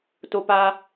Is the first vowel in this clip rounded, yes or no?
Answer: yes